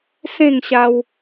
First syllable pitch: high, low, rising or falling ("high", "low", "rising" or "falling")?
falling